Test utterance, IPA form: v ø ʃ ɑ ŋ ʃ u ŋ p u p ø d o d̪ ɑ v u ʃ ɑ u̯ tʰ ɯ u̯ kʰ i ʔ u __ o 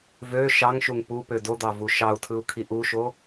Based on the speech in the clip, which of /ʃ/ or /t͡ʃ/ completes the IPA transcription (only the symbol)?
ʃ